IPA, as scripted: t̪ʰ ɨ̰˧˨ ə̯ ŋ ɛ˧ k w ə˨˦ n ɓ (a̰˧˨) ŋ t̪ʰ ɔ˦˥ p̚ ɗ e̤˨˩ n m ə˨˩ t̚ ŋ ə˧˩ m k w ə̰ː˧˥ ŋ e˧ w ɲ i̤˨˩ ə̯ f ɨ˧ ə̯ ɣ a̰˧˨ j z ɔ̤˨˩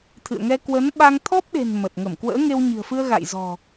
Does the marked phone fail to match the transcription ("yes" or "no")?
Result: yes